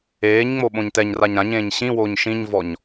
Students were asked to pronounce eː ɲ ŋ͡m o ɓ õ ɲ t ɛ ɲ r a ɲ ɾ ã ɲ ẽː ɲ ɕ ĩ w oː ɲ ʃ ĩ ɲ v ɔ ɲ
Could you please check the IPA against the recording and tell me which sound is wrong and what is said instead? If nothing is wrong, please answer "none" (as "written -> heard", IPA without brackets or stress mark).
none